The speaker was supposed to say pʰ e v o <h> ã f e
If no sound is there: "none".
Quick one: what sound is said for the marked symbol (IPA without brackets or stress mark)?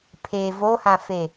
h